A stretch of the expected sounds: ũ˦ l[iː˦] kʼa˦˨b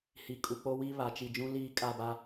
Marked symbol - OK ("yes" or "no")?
yes